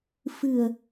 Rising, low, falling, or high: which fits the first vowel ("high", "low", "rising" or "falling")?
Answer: low